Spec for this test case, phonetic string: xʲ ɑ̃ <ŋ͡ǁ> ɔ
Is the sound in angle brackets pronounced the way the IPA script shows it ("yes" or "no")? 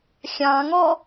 no